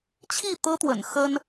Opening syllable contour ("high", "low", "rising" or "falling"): falling